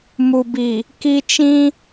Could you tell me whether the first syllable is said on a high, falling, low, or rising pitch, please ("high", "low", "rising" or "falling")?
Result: low